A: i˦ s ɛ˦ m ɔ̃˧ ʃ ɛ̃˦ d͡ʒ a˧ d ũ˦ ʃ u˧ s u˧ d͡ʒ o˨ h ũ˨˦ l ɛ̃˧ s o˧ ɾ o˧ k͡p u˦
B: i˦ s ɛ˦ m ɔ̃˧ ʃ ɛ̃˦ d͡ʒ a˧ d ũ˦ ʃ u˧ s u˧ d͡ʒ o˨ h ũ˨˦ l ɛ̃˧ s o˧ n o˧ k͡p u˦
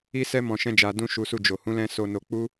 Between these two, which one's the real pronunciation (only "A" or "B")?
B